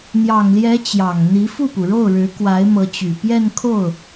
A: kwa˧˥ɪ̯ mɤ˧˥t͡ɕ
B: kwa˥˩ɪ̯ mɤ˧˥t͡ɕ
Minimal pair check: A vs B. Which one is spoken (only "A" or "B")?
A